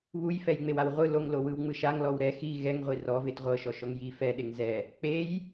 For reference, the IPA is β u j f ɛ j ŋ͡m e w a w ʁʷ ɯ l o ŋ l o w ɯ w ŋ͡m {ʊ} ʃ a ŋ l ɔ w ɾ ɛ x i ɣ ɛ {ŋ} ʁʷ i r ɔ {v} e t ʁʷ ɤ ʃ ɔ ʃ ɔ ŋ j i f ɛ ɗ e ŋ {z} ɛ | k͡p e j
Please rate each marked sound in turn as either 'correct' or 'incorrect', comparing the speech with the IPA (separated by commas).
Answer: incorrect, correct, correct, correct